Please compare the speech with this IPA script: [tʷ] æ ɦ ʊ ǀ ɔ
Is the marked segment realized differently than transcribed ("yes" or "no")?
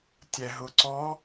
yes